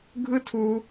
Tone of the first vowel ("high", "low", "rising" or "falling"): high